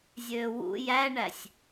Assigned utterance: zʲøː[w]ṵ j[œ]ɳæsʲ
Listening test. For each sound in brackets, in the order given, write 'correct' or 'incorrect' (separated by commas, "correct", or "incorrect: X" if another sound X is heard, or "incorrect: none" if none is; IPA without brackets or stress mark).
correct, incorrect: æ